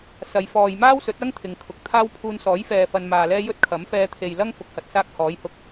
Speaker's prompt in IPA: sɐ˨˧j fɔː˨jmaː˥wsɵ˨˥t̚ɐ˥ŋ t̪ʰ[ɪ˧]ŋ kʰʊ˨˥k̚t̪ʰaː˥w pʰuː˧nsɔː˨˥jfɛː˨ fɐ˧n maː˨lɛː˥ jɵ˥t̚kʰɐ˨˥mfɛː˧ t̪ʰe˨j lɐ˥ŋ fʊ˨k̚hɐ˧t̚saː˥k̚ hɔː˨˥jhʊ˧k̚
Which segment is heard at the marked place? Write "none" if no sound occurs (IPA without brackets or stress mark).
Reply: ɪ˨˧